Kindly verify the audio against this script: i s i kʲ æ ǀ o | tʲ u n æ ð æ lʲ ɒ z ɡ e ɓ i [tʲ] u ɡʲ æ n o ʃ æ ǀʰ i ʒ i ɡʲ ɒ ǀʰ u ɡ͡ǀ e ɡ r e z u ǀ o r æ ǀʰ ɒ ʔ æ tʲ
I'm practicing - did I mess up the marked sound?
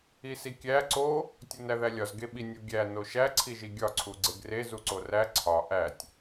yes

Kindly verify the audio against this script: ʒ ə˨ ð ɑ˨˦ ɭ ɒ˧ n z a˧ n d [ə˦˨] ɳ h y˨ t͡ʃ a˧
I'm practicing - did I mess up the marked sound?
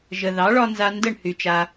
no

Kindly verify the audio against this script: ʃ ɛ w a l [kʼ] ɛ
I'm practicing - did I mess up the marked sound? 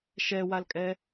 no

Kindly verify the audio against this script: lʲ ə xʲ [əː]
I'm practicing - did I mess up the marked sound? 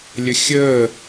no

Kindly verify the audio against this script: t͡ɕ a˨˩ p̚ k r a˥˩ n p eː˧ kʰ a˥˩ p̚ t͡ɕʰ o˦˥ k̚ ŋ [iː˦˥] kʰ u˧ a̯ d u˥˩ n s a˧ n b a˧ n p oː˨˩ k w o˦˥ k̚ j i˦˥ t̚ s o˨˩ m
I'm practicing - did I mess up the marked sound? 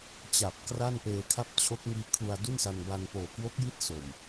no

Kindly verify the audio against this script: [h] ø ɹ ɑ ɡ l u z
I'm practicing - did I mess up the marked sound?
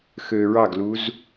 yes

